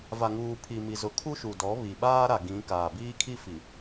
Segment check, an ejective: absent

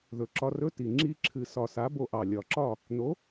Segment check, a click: present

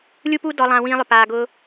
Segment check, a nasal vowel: present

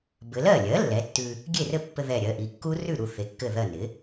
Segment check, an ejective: absent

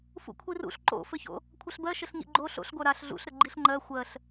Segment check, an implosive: absent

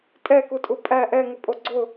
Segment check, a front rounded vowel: absent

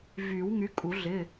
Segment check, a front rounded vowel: present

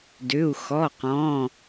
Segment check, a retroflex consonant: absent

